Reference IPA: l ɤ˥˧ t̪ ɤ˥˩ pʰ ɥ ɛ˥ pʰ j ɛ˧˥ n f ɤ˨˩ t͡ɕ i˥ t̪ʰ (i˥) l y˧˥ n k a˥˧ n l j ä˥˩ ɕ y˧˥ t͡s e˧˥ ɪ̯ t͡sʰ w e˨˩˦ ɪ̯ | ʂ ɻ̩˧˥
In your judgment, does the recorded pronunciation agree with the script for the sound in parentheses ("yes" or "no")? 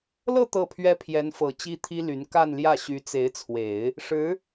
yes